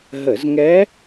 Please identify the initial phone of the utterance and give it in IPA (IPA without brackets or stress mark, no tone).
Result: ɦ